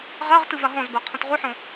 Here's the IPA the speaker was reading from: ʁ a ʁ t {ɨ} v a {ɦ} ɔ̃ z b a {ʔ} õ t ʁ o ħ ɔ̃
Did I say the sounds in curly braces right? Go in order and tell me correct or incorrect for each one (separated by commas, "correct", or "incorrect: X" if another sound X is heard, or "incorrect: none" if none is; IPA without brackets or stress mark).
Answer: correct, correct, incorrect: qʰ